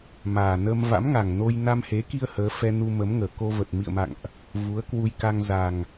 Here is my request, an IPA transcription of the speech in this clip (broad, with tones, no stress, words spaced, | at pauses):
maː˨˩nə˧m va̰˧˥mŋa˨˩ŋno˧j na˧mhe˨˦ki˧ə̯ həː˨˦ fɛ˧nu˧mə˨˦mŋəː˨˩ ko˧və˨˩t̚ mḭ˧˨ə̯ma̰˧˨ŋʔ | vu˨˦ə̯kwu˧jka˧ŋ za˨˩ŋ